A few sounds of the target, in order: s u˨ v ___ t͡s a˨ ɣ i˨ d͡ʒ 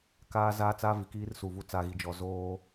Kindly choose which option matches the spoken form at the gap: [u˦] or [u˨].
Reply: u˦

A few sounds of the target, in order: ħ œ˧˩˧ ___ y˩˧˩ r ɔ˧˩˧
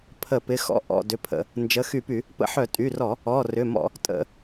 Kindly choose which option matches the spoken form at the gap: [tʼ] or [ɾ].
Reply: tʼ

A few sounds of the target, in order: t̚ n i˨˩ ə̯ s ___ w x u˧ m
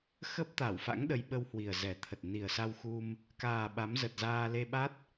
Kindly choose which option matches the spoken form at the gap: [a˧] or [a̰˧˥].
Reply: a˧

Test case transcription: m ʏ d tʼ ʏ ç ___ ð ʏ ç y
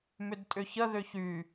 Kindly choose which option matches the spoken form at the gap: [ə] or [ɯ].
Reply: ə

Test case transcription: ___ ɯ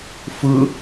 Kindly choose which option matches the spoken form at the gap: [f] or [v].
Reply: f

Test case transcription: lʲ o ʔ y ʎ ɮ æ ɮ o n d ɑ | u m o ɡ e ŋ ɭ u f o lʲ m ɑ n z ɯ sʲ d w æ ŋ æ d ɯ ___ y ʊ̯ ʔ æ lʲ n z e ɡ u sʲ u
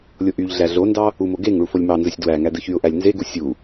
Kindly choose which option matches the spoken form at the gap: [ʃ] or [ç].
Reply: ç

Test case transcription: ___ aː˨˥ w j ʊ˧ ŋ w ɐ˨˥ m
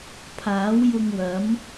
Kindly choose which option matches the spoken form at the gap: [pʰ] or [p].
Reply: pʰ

